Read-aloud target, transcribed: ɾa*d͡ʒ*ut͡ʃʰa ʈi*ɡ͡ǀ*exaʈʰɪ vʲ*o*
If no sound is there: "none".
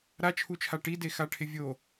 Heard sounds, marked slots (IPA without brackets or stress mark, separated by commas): t͡ʃʰ, d, o